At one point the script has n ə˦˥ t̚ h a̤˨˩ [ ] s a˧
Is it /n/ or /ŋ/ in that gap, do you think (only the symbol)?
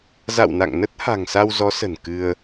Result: ŋ